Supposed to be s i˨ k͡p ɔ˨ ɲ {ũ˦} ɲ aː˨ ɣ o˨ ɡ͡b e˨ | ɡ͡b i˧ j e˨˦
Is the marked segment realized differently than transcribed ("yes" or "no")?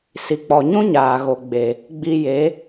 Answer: no